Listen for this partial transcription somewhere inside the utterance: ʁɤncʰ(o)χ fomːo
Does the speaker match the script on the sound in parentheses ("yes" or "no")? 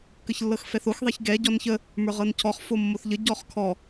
no